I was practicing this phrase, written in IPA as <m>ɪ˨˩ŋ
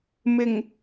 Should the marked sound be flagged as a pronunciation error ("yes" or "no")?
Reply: no